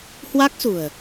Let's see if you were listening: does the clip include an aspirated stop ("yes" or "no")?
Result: no